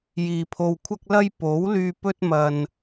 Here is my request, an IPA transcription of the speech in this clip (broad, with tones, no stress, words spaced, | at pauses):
jiː˨pʰo˧wkʷʰɐ˥k̚lɐ˥j po˨˥wlyː˧ pɵ˥t̚ mɐ˧n